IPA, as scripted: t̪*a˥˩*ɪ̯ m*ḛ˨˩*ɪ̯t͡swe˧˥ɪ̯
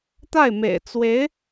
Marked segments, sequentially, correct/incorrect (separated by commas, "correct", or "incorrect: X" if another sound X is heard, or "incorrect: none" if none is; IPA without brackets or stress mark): correct, correct